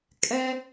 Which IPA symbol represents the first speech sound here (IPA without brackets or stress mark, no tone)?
kʼ